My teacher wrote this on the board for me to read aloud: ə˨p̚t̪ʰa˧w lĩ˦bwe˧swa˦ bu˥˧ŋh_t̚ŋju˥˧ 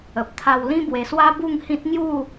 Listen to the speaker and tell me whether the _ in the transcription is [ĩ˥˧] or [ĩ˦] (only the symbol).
ĩ˦